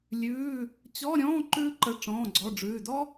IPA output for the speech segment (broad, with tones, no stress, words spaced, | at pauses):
lʲʉː˧˥˧ | t͡ɕɔ˧˥˧ɾʲɔ̃ː˧˥˧ ǃʉː˥ǃə˧˥˧ ʈ͡ʂɔ̃ː˧˥˧ɡ͡ǀɔ˧˥˧ɖ͡ʐʉː˧˥˧ dɔ˥